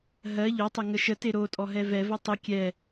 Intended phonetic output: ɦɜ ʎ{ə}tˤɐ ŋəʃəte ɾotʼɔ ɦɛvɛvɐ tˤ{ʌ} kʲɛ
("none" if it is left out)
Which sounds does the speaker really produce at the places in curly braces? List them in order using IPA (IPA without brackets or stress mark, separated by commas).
ɔ, ə